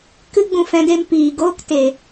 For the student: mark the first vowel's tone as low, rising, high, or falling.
high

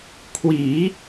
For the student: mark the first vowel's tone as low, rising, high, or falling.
rising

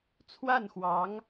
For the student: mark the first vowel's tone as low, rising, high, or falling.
falling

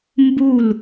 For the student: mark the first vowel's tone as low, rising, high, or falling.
falling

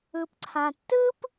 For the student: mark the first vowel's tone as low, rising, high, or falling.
low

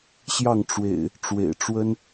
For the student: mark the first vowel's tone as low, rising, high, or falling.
falling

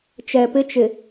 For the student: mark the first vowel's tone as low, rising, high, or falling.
low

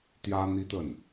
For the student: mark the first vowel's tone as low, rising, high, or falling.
high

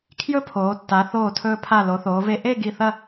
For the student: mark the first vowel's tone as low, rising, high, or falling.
high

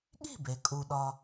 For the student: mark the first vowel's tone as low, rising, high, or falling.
falling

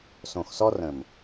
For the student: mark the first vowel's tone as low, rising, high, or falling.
low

